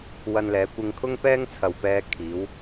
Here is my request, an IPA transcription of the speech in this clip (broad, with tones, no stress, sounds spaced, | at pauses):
w ɐ˧ n l ɛː˨˧ kʷ ɪ˧ ŋ kʰ ʊ˥ ŋ p ɛː˥ ŋ t͡sʰ ɐ˨ w p ɛː˧ kʰ iː˨˧ w